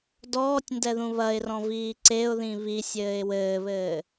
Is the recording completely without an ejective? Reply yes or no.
yes